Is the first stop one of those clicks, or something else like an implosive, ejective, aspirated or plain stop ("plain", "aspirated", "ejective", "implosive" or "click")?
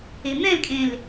ejective